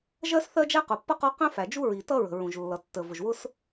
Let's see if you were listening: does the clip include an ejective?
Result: no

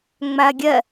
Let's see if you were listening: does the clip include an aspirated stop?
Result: no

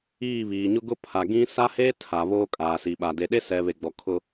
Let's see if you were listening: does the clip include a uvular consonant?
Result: no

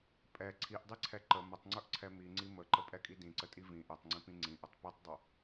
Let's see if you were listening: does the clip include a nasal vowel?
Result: yes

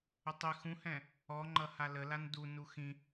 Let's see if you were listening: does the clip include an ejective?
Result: no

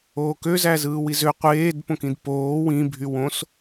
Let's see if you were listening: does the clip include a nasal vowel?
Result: yes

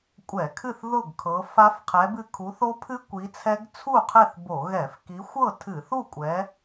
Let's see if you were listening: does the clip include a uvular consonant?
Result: yes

